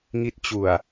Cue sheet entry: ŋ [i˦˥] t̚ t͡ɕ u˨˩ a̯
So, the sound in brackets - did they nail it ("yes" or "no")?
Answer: yes